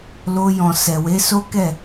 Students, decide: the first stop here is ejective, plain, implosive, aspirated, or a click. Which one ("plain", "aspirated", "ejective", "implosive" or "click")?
plain